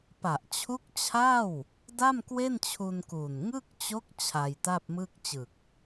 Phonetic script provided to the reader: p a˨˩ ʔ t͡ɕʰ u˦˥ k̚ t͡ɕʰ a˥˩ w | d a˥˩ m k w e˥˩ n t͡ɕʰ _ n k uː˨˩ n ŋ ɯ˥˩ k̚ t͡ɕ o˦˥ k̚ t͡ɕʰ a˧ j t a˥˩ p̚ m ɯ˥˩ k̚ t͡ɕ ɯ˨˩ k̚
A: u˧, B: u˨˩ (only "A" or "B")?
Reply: A